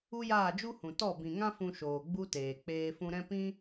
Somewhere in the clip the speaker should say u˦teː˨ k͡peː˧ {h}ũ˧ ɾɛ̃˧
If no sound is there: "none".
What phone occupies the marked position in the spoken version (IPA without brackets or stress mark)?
f